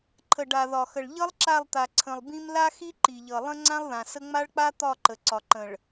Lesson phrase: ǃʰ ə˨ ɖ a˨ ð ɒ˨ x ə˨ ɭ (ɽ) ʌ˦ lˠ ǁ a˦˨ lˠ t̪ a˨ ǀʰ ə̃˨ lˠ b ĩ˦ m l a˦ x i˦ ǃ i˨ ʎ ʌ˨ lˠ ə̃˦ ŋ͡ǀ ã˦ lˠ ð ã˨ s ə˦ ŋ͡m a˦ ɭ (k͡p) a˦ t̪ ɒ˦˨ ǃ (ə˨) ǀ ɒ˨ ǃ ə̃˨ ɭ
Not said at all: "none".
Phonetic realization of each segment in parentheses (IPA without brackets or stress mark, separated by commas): ʎ, k͡p, ə˨